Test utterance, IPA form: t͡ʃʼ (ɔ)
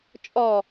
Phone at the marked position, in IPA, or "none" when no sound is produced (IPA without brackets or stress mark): ɔ